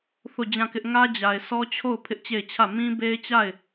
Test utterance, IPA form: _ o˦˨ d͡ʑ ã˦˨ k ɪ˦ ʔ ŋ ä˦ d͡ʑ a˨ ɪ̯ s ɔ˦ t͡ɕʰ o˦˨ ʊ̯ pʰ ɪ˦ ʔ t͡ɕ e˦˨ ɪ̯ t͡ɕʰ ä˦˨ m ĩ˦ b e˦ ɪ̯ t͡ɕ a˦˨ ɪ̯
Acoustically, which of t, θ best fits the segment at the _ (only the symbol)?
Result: θ